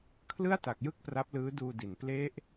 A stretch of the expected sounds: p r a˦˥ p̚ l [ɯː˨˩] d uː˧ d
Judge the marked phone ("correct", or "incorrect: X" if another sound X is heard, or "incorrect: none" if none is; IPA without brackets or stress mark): incorrect: ɯː˦˥